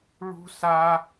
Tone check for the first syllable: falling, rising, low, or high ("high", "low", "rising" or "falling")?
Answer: high